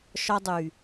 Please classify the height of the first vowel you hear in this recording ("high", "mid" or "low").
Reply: low